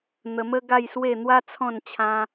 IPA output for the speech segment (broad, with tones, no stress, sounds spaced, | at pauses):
n̪ ə˧ m ə˦ ɡ a˥˧ j s w e˥˧ n̪ w a˦ t͡sʰ ɔ̃˥˧ n t͡ɕʰ ã˦